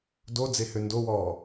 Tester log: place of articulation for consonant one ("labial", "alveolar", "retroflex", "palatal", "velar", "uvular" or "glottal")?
alveolar